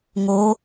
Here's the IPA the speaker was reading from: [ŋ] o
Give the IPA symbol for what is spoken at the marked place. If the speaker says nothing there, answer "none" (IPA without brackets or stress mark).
ŋ